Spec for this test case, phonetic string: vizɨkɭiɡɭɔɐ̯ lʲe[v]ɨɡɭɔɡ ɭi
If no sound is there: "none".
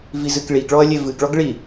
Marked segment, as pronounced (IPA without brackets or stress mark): v